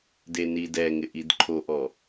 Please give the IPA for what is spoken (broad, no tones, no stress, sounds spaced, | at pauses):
d e n i d ɛ ŋ ɪ ʔ i d ǃʰ o ʔ ɔ